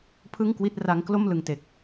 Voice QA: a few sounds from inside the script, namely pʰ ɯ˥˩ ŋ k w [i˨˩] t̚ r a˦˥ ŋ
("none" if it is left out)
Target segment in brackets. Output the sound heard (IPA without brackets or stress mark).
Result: i˥˩